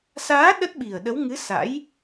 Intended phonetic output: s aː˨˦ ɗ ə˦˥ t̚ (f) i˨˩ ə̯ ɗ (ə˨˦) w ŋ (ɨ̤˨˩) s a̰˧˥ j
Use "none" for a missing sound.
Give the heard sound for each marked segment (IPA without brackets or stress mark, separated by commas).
ɓ, ə˨˦, ɨ˨˦